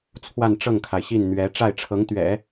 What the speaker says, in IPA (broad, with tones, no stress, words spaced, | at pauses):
t͡sʰwa˥˧nʈ͡ʂɤ˥˩ŋkʰa˩ɪ̯ɕi˥˩n n̪ɥɛ˧˥ ʈ͡ʂa˥˩ɪ̯ʈ͡ʂʰɤ˧˥ŋt̪ɥɛ̰˨˩˦